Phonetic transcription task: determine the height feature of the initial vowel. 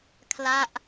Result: low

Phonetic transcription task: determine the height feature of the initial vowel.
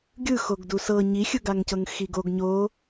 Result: high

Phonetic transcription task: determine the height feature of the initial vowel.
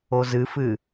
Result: mid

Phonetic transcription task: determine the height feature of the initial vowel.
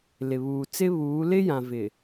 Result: high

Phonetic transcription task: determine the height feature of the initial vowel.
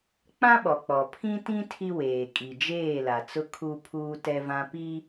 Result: low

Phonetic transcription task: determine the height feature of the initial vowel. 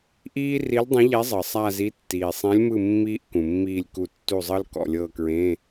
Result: high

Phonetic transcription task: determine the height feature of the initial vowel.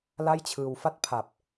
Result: low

